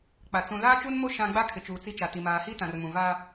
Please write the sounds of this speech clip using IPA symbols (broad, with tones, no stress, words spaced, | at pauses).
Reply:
k͡pa˨ t͡sũ˨ laː˦t͡ʃuː˦nmo˦ ʃã˦ ɡ͡ba˦kʰɪ˨t͡ʃuː˨ t͡si˦t͡ʃa˨ti˨ maː˨hi˦tã˨rmũ˨ va˦